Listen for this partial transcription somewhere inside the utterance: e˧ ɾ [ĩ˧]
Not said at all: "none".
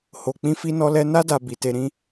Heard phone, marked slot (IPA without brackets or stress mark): ĩ˧